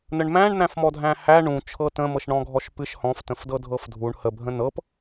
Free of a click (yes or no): yes